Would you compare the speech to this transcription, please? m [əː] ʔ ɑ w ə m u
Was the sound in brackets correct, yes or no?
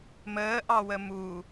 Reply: yes